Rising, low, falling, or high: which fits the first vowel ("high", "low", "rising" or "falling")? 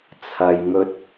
low